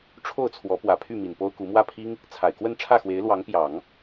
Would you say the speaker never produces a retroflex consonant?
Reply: no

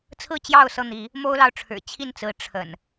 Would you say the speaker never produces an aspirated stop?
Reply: no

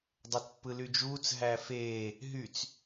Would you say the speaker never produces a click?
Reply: yes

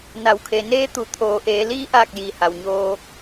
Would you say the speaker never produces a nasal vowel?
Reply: yes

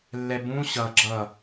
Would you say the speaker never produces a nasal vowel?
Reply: no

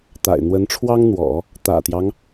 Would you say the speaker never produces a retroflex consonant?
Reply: no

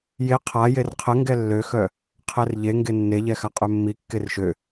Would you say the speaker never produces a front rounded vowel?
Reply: no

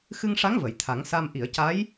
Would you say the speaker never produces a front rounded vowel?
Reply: yes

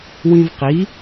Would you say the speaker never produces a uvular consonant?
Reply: no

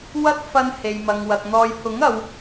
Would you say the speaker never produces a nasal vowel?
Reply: yes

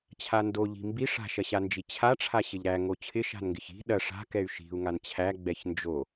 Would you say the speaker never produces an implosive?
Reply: no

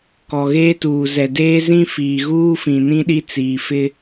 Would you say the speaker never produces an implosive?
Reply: no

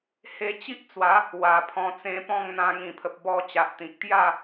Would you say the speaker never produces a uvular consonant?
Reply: yes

